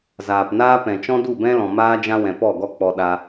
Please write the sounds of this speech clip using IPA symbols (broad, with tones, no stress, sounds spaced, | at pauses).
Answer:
z aː˨ p n aː˦ p ɛ̃˨ t͡ʃ ɔ̃˦ d u˦˨ b ɛ̃˦ l ɔ̃˨ m aː˦ d͡ʒ ã˦ w ɛ̃˨ p ɔ˦˨ ɡ ɔ˦ k͡p ɔ˧ ɗ a˧